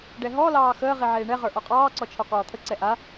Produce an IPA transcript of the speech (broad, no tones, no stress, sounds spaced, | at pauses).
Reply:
ɖ ɛ ɦ ɔ l ɑː x əː ʁ i ʕ eː ɳ ɛ ʁ ə˞ ʔ ɔ qʼ ɑː ǀ ɔ t͡ʃʰ ɒ k ɒː t̪ʰ ə ǀ ɛ ʔ a